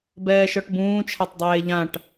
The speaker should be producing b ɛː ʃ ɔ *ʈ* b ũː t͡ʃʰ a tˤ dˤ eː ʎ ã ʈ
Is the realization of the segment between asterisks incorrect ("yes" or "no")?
no